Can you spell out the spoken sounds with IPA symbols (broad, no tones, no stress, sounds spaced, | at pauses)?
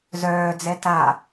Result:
z œː d͡z ɛ t a